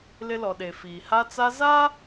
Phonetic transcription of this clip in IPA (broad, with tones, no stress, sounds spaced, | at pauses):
l ɪ˦ l ɔ˨ ɗ e˨ f iː˨ h a˦ t͡s a˦ z a˦